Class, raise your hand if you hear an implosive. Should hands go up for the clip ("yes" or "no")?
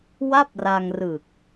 no